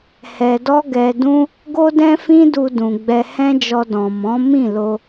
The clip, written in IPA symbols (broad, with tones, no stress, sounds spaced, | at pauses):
h ɛ˧ d ɔ˦ ɡ ɛ˧ d ũ˦ | ɡ o˦ d ɛ̃˦ f ĩ˦ d u˧ d ũ˨ ɡ͡b ɛ˧ h ɛ̃˦ d͡ʒ ɔ˧ d ɔ̃˨ m ɔ̃˨˦ m ĩ˦˨ l o˧